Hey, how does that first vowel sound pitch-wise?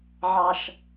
low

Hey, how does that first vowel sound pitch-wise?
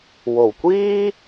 low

